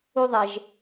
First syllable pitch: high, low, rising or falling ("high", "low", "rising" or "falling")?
low